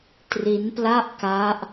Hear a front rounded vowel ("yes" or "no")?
no